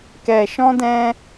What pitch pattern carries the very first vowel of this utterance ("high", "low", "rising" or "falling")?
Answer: low